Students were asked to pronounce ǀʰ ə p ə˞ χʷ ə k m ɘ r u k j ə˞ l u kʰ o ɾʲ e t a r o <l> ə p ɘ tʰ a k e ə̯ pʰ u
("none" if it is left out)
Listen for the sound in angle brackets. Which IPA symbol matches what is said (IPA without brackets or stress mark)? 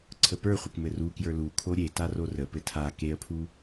r